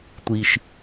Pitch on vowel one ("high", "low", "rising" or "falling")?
low